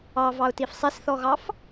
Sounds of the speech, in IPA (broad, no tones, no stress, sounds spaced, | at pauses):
ɑ v ɑ ʊ̯ t i f sˤ e s θ ɔ ɣ ɑ f